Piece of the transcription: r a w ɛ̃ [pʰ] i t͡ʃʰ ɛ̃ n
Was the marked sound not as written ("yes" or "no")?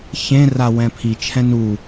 no